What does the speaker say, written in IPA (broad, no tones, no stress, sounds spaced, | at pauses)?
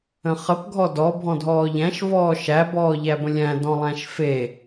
ə̃ χ ə p ɡʱ ɔ d ɔ bʱ ɔ̃ dʱ ɔː ʎ æ̃ ʃ v ɔː ʃ æ b ɔː ʎ æ b ə̃ lʲ æ̃ d ɔ̃ lˠ æ̃ ʃ f e